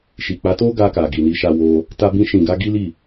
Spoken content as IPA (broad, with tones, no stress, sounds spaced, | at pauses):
ʃ i˨ k͡p a˨˦ t o˦ ɡ a˧ k a˨ ɡ i˨ n i˨˦ ʃ a˧ w o˧ | t a˧ b ĩ˧ ʃ ĩ˨ ɡ a˧ ɡ i˦ l i˦˨